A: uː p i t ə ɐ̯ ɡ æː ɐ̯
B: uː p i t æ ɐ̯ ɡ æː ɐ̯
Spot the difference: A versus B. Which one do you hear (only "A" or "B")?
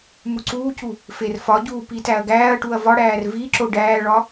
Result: B